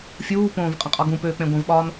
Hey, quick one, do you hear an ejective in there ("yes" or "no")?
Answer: yes